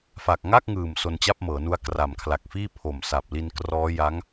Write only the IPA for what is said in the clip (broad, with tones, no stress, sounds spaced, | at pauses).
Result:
f a˨˩ k̚ ŋ a˥˩ k̚ ŋ ɯː˨˩ m s o˧ n t͡ɕ a˥˩ p̚ m ɤː˩˦ n u˦˥ a̯ k r a˨˩ m kʰ l a˨˩ k̚ f iː˥˩ pʰ o˨˩ m s a˨˩ p̚ l i˧ n k r ɔː˦˥ j a˦˥ ŋ